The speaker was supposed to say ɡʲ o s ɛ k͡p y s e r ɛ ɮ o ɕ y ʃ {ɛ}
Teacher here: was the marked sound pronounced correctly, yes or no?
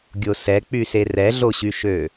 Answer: no